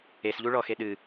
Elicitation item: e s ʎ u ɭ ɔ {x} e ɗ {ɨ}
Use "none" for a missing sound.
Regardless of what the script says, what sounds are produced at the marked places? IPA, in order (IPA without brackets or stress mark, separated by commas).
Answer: x, ɨ